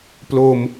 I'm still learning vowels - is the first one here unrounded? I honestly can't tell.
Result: no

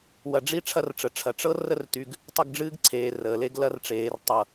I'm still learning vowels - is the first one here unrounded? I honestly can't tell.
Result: yes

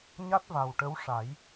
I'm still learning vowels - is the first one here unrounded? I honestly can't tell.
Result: yes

